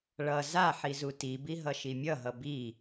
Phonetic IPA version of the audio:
ɭ ʌ z a ħ i z u t i b i ɦ ʌ ʃ i mʲ ʌ ɦ ʌ b i

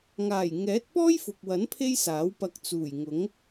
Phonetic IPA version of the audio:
ŋ aː˨˩ j ŋ ɛː˨˥ t̚ p ɔː˥ j f ʊ˨ k̚ w ɐ˨˥ n pʰ e˥ j s aː˨˥ w p ɐ˧ k̚ t͡s uː˨˩ j ŋ ʊ˨˥ ŋ

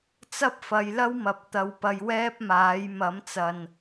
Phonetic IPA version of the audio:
t͡s ɐ˥ p̚ f ɐ˨˧ j l ɐ˥ w m ɐ˨ p̚ t̪ ɐ˧ w p ɐ˧ j w ɛː˥ p̚ m aː˨˥ j m ɐ˨˥ m t͡s ɐ˨ n

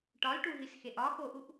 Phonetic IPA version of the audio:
ʈ ɒ l ʈ u ɦ i s x e ʔ ɒ x o ʔ u ʔ

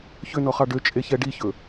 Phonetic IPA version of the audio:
ç ø n ɔ χ ɑ ɖ ø t͡ʃʼ e ç ɛ ɖ i ç ɵ

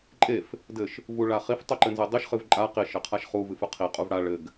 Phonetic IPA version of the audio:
ǃʼ e f | d ɘ ʃ | v u ɭ a χ i f tˤ o ǃ ɘ n z ɘ dˤ i ʃ χ ɨ v ǃʼ a q i ʃ ɘ qʰ a ʃ χ u v ɨ f ɨ qʰ i qʼ u v ɽ a ɭ ɘ ɡ

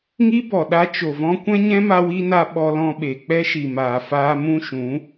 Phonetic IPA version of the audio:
ŋ i˦ b ɔ˨ ɗ a˧ t͡ʃ o˨ v ɔ̃˧ kʷ ɛ̃˦ ɲ ɛ̃˦ m a˧ w i˧ n a˧ ɓ ɔ˧ l ɔ̃˧ ɓ e˨ k͡p ɛ˦ ʃ i˨ m aː˨ f aː˧ m ũ˦ ʃ ũ˨˦

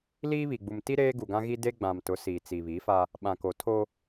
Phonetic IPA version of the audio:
l iː˦ β i˨ ɡ͡b u˨ m t i˦ ɾ eː˦ ɡ u˨ ɡ ã˦ ɣ i˦ d e˦ ɡ͡b ã˨ m t ʊ˨˦ s iː˨ t͡s i˨ β iː˨˦ f a˦ | ɓ ã˨ k o˨ tʰ o˦

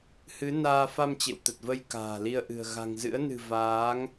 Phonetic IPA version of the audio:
h ɨ˨˦ n aː˧ f a˧ m t͡ɕ ḛ˧˨ w t̪ ə˨˩ t̚ v ə˧ j k a̤ː˨˩ l i˧ ə̯ ʔ ɨ̤˨˩ ə̯ ɣ a̤˨˩ ŋ z ɨ̰˧˥ ə̯ n ɨ̤˨˩ v aː˨˦ ŋ

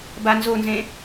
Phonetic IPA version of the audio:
b a n z o n z ẽ

